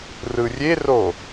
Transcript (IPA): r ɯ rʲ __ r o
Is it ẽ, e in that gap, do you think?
e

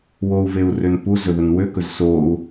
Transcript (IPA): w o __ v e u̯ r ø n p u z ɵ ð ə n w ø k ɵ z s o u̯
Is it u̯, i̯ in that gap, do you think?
u̯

